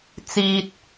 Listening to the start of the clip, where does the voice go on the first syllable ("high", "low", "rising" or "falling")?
low